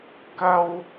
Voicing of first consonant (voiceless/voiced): voiceless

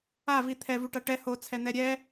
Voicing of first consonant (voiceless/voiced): voiced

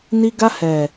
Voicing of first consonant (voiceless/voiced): voiced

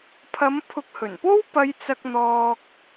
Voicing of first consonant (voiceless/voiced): voiceless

